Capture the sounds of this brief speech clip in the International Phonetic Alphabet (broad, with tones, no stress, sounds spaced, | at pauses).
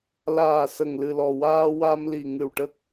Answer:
l aː˨˩ s ə˨˩ ŋ l ɨ˨˩ l ɔ˨˩ w aː˧ w a˧ m l i˨˩ ŋ ɨ˨˩ w ʈ ə˦˥ k̚